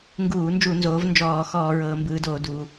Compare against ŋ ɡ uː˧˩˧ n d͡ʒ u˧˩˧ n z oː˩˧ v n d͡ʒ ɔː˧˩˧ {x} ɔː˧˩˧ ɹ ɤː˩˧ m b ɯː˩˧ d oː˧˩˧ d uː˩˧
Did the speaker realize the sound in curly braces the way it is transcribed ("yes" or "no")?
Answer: yes